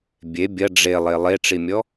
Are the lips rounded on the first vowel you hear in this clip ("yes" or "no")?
no